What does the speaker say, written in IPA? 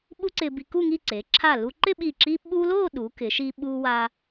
ɓ u˥ ǀ ɪ˧ b i˧ k u˥˧ ŋ i˥˧ ǀ e˩˧ ǁʰ a˧˩ l u˧ ǃ ɪ˥˧ ɓ i˧˩ ǁ i˥ ɓ u˥ l o˥˧ ɗ u˩˧ k ɪ˩˧ ʃ i˧ ɓ u˧ w a˧

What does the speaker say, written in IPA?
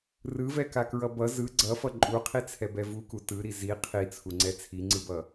r ɯ v ɛ k a k ɹ ʌ b ʌ z ɯ ɡ͡ǀ ʌ f ʌ ǃʼ u qʰ i t͡sʰ ɛ b ɛ v u k u t ɯ ɾ i z i qʰ i t͡sʰ u ŋ͡ǀ ɛ t͡sʰ i ŋ͡ǀ ɯ b ʌ

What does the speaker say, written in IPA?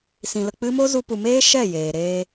s ĩ˧ l ə˧ k͡p ɨ˦ m o˦ z u˧ p u˨ m eː˦ ʃ ɛ˦˨ j eː˨ ɾ eː˧

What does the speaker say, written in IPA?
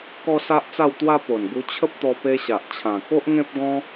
k ɔ˦ s a˦ ʔ t͡s a˥˧ w t̪ w a˦ p o˨˩ n ɡ u˧ t͡ɕʰ ə˦ p̚ t̪ ɔ˧ p e˧ ɕ a˨ ʔ t͡ɕʰ ã˨˩ k o˦ ʔ ŋ ẽ˦ p̚ ɡ ɔ̃˦

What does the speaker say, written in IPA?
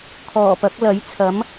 kʰ ɔː˨˩ p ɐ˨˥ k̚ l ɐ˨˥ j t͡sʰ ɐ˨˥ m

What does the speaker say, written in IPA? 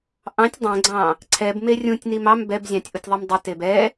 ʔ ɑ̃ tʲ dˤ ɛ̃ ɡ͡ǀ ɑ̃ | ǀʰ ɛ b m e rʲ ũ tʲ n i m ɑ m b ɛ b zʲ ɑ̃ tʲ ʔ u tʲ ðˤ i m dˤ ə t e b ɛ

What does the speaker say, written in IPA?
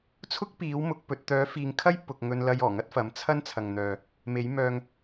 t͡sʰ ʊ˥ k̚ p iː˨˥ w m ʊ˨˥ k̚ p ɵ˨˥ t̚ t̪ œː˨˥ f iː˨ ŋ kʰ ɐ˥ j p ʊ˨ k̚ ŋ ɵ˧ n l ɐ˧ j ɔː˨˩ ŋ ɐ˥ t̚ f ɐ˨˥ m t͡sʰ ɐ˥ n t͡sʰ ɐ˨ ŋ n̪ œː˨ | m e˨˥ j m œː˧ ŋ

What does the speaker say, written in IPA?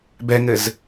b ɛ ŋ ɘ z

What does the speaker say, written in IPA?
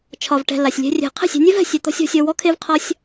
t͡ʃʰ ɒ˨ v ʈ ɛ̤˨ l a˨ sʲ lʲ ɛ̤˧ rʲ ɛ̤˨ qʰ ɛ̤˦˨ sʲ ɛ̤˧ nʲ ɛ˦ v ɛ̤˨ sʲ e˧ t̪ ɔ̤˦ sʲ ɔ̤˧ sʲ ɔ˧ w ɔ˦ kʰ e˦ v qʰ ɒ˦ sʲ

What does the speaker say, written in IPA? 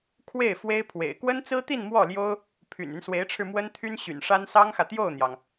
kʰ w e˥˩ ɪ̯ f w e˥ ɪ̯ pʰ w ḛ˨˩ ɪ̯ k w ə˥ n t͡s ɹ̩˥ t̪ i˥˧ n m w ɔ˥˩ l j o˥ ʊ̯ | pʰ y̰˨˩ n y˦ n s w e˧˥ ɪ̯ ʈ͡ʂʰ ɻ̩˧ m w ə˥ n t̪ʰ y˥ n ɕ y̰˨˩ n ʂ a˥ n s ɑ˥ ŋ x ä˨ t̪ j o˥˩ ʊ̯ n̪ j ɑ˩ ŋ

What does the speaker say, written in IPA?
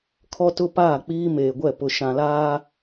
kʰ ɔ˦ t ʊ˦ p aː˦˨ k͡p iː˦ m eː˨ ɡʷ ɛ˦˨ p ʊ˨ ʃ ã˨ l aː˦

